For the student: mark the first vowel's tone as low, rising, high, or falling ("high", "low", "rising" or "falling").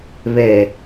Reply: low